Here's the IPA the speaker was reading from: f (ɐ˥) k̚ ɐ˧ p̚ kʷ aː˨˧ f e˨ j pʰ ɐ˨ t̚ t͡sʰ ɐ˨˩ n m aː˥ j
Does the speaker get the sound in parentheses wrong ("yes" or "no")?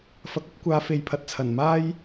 yes